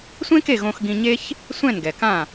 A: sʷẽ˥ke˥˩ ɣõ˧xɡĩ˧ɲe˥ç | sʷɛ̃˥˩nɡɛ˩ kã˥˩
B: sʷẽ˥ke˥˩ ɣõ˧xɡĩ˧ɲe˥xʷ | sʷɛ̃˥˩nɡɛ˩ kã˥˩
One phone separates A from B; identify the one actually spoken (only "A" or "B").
A